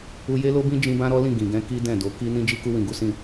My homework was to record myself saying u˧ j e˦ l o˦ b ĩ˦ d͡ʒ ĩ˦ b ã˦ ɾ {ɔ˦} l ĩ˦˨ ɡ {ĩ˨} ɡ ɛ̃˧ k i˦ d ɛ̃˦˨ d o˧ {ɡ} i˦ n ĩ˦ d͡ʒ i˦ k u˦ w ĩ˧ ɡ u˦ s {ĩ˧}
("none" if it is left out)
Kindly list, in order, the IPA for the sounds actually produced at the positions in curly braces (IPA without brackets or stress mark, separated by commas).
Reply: ɔ˦, ĩ˨, k, ĩ˦˨